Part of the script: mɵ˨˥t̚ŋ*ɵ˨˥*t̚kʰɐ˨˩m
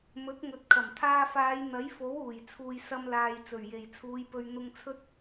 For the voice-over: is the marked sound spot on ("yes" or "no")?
yes